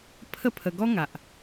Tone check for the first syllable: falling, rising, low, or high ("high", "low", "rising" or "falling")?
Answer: falling